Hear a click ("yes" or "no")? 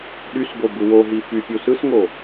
no